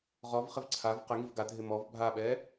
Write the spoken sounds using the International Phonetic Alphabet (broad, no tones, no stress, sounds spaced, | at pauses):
ʁ ɔ v χ ɪ v ǀʰ a v q ɪ ŋ i v ɡ a dʱ ɪ m ɔ v bʱ a ɓ ɛ